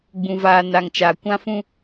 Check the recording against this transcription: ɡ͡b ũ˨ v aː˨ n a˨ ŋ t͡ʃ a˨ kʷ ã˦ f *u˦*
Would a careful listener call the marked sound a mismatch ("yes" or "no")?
yes